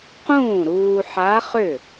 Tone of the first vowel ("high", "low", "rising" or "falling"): falling